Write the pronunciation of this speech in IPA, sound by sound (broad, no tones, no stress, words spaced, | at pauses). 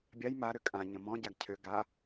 bʲaj ma ɾʏkʼã ɲə̃mɔ̃ ɟaɡcʰʏ ɡa